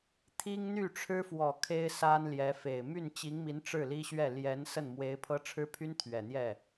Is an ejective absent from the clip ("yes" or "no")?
yes